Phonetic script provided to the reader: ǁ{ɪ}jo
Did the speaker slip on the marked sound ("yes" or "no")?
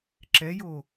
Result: yes